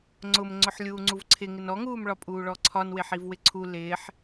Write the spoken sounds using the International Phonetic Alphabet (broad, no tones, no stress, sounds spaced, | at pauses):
ŋ͡ǀ ʊ m ŋ͡ǀ ʊ ħ lʲ uː ŋ͡ǀ u v ǀʰ ɪ ŋ ɪ n ɔ ŋ uː m ɭ ɒ pʼ uː ɭ ɔ ǀʰ ɒ n w ɪ ħ i v w ɪ ǀʰ u l ɪː ħ